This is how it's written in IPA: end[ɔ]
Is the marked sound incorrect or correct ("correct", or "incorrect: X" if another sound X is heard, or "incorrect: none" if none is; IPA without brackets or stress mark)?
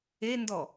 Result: correct